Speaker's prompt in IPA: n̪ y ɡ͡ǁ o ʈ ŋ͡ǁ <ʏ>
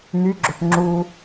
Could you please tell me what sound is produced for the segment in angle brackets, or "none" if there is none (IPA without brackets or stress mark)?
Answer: u